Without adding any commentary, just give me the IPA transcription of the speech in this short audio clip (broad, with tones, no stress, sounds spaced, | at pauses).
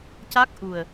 c a˦˥ k̚ ʔ u˨˩ ə̯